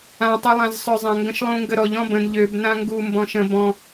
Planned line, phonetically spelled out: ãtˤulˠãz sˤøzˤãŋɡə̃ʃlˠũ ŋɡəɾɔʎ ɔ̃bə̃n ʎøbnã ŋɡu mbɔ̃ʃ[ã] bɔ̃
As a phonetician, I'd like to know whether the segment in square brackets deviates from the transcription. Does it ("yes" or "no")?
yes